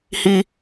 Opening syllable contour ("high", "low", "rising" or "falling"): high